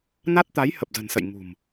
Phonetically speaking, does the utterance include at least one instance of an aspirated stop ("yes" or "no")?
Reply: no